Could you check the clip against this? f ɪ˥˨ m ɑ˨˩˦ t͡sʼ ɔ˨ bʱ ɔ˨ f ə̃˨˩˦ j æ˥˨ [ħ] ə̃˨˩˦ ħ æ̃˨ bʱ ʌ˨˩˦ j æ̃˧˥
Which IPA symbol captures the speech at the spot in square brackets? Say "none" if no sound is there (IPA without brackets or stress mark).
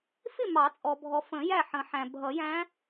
ħ